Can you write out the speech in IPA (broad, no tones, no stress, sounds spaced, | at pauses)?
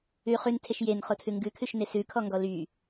ʉ χ ʉ n tʰ e ʃ j e n χ o tʰ ʉ ŋ ɡ ʉ kʰ ʉ ʃ n e s ʉ kʰ ɔ ŋ ɡ ɔ l y